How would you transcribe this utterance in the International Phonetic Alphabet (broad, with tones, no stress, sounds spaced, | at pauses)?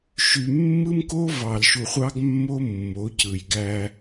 ʃ y˨ mː ɯ˦ m k o˦ v ɑ˨ l ʃ u˨ χʷ ɑ˦ ɡ mː o˦ mː o˨˦ c ɯ˨ j ɡ æ˦